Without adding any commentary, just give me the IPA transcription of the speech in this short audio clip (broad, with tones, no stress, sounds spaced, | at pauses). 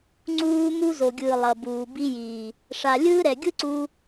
ŋ͡ǀ uː˦ m u˦ z o˨ ɡʲ ɯː˨ lˠ ʌ˨ b uː˨ b i˦ j iː˨ | ʂ a˨ lʲ ɯː˦ ɾ ɛ˨ ɡʲ ɯ˦ ǀ u˧